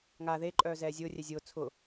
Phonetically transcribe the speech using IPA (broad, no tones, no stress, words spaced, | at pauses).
ŋa ðe ǃʼœːzɛːzʲʊː rʲɛzʲʊː t͡sʰʊ